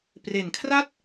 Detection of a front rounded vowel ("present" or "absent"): absent